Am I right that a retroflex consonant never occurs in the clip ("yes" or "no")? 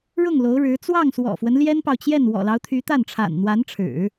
no